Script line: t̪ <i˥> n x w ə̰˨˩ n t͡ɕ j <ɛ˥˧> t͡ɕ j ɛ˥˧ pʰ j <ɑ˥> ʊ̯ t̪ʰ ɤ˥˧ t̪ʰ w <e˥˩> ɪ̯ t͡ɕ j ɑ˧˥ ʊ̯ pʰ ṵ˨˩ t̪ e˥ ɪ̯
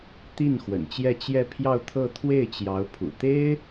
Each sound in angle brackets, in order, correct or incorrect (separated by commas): incorrect, correct, incorrect, correct